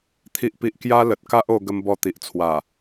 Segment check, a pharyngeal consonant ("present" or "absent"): absent